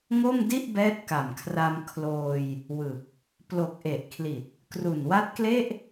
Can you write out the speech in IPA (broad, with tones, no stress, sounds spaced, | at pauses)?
ŋ o˥˩ m d i˥˩ ʔ b ɛː˦˥ t̚ k a˨˩ m kʰ r a˧ m kʰ l oː˧ j | w ɯ˨˩ k̚ | p l o˨˩ k̚ ʔ e˨˩ ʔ kʰ l i˨˩ t̚ | k r u˨˩ n w a˦˥ t̚ k l e˥˩ ʔ